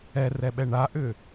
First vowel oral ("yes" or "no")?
yes